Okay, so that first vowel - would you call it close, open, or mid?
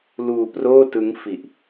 close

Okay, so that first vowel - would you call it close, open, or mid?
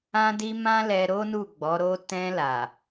open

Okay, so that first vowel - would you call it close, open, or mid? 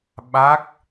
open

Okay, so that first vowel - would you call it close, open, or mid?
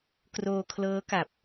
mid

